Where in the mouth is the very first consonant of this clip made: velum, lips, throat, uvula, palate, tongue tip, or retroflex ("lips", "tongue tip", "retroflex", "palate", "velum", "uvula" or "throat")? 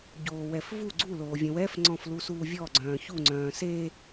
palate